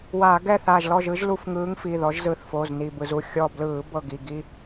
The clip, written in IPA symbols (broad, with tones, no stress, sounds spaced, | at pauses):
w aː˧˩˧ ɡ ɛ˥˨ θ aː˧˩ ʒ l ɔ˥˨ ʒ ɯ˨˦ ʒ l u˧˩ f ŋ ɯː˨˦ ŋ f i˩˧˩ ð ɔ˨˦ ʒ z ɯ˧˩ θ f oː˩˧˩ z n i˧˩ b ɯ˧˩˧ z u˩˧˩ xʲ ɔ˧˩ b l ɯː˧˩˧ b ɤ˧˩ ɡ i˧˩ ɡ i˦